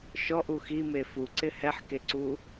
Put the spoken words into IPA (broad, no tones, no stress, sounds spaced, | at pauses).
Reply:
ʃ ɔ ʔ u x i m e f u ǀ ɪ h ɛ ħ k e ǀ u